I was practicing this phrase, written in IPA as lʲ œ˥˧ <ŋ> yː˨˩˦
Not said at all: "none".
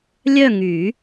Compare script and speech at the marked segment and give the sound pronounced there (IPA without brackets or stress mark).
ŋ